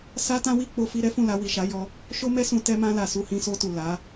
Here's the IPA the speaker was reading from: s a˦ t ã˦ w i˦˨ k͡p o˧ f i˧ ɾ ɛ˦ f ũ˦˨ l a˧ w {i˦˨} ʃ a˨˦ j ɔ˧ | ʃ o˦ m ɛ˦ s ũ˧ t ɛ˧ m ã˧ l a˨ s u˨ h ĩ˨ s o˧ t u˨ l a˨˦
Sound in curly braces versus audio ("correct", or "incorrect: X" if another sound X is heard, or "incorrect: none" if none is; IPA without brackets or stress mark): incorrect: i˨